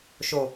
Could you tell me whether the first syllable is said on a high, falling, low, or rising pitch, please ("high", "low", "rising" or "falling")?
low